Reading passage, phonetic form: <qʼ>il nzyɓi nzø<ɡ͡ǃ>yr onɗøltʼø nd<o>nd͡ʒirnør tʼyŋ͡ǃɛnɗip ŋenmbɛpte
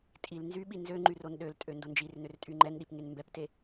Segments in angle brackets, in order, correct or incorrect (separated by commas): incorrect, incorrect, correct